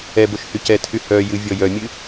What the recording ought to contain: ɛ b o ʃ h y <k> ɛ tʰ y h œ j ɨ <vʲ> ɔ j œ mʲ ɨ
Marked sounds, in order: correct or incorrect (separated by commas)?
incorrect, correct